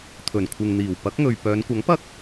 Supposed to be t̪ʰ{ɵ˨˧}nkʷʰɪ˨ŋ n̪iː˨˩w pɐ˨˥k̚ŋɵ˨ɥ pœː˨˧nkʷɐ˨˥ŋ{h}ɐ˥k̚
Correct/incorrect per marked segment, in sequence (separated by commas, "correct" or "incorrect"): incorrect, incorrect